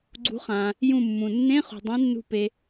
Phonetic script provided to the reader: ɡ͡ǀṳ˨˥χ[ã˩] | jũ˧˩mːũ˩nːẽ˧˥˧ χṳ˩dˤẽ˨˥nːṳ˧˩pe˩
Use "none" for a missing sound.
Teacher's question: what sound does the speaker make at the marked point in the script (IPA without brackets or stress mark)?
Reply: ã˩